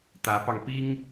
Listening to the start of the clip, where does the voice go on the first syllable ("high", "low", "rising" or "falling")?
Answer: rising